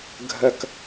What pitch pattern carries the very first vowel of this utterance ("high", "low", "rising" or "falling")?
falling